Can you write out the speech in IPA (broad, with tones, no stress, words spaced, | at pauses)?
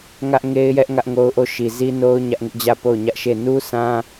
ŋä˦ʔŋe˦ɪ̯jɛ˦ʔ ŋä˦ʔŋo˦ʊ̯ʔo˦˨ʃi˨ zi˦no˦ʊ̯ ɲä˦ʔŋɪ˦ʔd͡ʑä˦˨ po˦˨ʊ̯ɲä˦ʔʃe˦˨ nu˦ sã˦